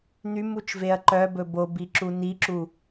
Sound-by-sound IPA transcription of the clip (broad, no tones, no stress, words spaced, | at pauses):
n̪ymut͡ʃveɐ̯ ǃœbɵ bobiǁu niǁu